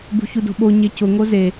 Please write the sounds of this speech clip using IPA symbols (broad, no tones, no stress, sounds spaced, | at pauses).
b ṳ ç u d o̤ ɓ o ɲ e c ʊ ŋ o z e